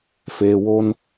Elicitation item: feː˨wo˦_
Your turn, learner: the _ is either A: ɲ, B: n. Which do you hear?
B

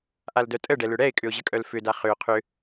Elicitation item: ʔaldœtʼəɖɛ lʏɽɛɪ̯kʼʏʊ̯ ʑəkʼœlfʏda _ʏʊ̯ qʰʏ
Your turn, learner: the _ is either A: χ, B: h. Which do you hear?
A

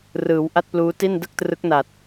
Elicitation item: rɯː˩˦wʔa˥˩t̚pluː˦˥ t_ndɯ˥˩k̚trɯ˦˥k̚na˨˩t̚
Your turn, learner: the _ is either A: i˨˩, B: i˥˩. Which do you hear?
B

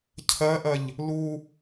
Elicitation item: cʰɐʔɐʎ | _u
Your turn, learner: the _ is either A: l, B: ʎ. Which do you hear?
A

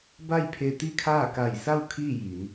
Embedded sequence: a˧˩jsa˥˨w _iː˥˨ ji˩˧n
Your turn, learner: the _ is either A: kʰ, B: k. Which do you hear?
A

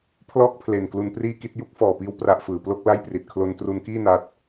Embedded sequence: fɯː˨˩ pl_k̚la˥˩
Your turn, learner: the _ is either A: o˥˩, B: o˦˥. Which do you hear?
A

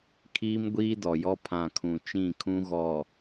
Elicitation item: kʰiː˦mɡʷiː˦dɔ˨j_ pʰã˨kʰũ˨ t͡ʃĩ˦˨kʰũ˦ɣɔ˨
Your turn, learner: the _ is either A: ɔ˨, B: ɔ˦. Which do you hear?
B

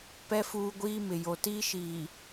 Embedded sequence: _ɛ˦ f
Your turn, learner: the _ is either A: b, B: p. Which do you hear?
B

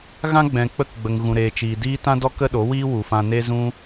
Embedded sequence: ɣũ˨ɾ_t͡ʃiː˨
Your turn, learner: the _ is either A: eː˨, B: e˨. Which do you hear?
A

